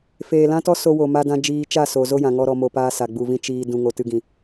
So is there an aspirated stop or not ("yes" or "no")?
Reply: no